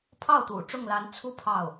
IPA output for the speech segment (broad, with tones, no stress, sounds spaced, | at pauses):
pʰ ɑ˥˩ ʊ̯ t̪ ṵ˨˩ ʈ͡ʂ ʊ˥˩ ŋ l a˧˥ n t͡sʰ u˥ pʰ ɑ˥˩ ʊ̯